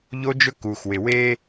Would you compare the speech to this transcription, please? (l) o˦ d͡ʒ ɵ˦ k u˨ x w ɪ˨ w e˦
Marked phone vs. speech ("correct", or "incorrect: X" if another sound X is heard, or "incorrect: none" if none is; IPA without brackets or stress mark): incorrect: ʎ